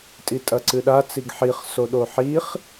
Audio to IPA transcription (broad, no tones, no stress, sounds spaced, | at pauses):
tʼ i tʼ ɐ ǀ ɨ ɗ a t͡s i ɡ ħ i χ s o ɗ o ħ i χ